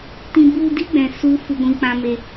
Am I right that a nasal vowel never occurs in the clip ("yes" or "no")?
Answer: no